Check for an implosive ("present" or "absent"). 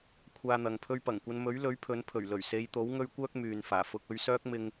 absent